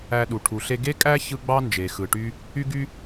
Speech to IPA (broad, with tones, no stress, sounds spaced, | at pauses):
æ˧ ɗ u˩ ʈʰ u˩ ɬ e˧ ɡ e˥ kʼ æ˥ ç ɯ˧ ɡ͡b ɑ˥ n d͡ʒ e˩ x ɯ˩ ʈ y˧ | y˥ ɡ y˥